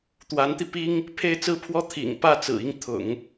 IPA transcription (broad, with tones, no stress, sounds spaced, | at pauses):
t̪ w a˧˥ n t̪ i˧ p i˥ ŋ | pʰ e˥˧ ɪ̯ t͡s ɹ̩˥˩ pʰ w ɔ˥ t̪ʰ ḭ˨˩ ŋ p ä˥˩ t͡s ɹ̩˨˩ i˥˩ ŋ t̪ʰ ʊ̰˨˩˦ ŋ